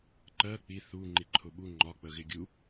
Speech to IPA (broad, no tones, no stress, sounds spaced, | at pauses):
ǃ ɜ k͡p i θ u ŋ͡ǃ i ǃʰ ʊ ɓ u ŋ͡ǃ ɒ k͡p ə ɣ ɪ ɡʲ u